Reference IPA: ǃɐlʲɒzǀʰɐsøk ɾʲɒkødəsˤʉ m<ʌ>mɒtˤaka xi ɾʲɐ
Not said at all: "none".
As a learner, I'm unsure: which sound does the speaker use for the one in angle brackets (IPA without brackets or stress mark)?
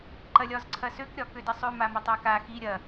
a